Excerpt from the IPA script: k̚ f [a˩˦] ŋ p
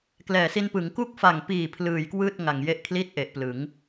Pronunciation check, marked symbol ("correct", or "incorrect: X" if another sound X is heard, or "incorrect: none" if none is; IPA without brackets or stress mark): incorrect: a˨˩